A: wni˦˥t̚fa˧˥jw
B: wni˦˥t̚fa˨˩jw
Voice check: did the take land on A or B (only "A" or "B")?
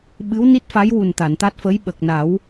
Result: A